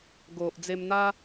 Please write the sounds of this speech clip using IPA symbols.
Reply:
ɡ o˨ ʔ d͡z e˧ m n̪ a˦

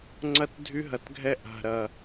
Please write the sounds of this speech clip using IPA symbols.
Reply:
ŋ͡ǀ ɐ˦˨ t dʱ y˧ ɦ ɐ˨ t ɡʱ ɛ˧ ʔ a̤˨ ɾ ɐ˨

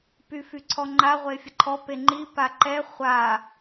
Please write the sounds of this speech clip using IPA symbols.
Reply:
p y f y ǀʰ ɔ ŋ͡ǃ a ʁʷ e fʲ ə ǃʰ ɔ p e ŋ͡ǃ i p a ǃ ɛ χʷ a

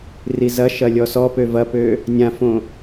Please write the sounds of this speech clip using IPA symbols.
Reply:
r i z ɐ ʃ ɐ lʲ ɔ s ɔ p ø v ɐ p ø | nʲ ã f õ

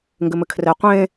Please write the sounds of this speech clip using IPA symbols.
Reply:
ŋ ɡ ɘ m ɘ kʰ r ɛ qʷ ẽ

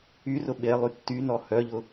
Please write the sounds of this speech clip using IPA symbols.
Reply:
y r ʊ ɓ e lˠ y tː y n ɔ h œ ʎ ʊ

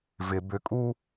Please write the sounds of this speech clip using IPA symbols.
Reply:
v ɪ b ʏ kʼ u

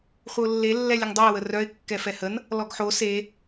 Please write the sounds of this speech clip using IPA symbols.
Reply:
χʷ ə ʊ̯ lː e lː ɛ lʲ ə ŋ dˤ o ə̯ w ə r œ ɪ̯ kː ɛ f ɛ h ə n | l ɔ ɡ ħ o s e

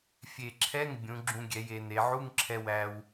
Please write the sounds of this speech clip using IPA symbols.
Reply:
fʲ e˨˩ ǁʰ ɛ˧˥˧ ŋ bʲ ũ˩˧ ɡ͡ǁ ũ˧ ɡʲ ɛ˩˧ j e˩˧ n e˩˧ ʕ u˧˥˧ ŋ ǁʰ ɛ˧ w æ˧ w

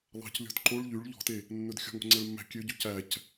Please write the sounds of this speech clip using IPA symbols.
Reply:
lˠ ɑ̤ c lʲ ɔ̤ d ǃ o ɭ ʎ y ɭ ʎ ɔ̤ t e | nː ɵ d xʲ ɔ̤ ŋ o̤ ŋ͡ǀ ɛ ɭ mː æ̤ kʲ ø ɟ ʉ c æ c

